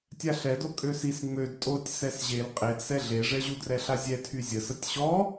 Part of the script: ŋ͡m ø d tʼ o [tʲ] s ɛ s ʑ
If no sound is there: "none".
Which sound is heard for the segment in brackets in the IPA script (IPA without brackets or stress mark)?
tʲ